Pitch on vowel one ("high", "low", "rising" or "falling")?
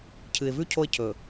low